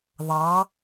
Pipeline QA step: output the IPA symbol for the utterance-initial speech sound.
ðˤ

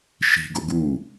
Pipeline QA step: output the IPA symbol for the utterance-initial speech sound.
ʃ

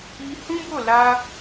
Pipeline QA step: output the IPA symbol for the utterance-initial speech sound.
i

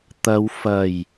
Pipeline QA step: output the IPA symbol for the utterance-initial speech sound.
t̪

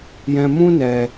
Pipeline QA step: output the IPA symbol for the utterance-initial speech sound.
j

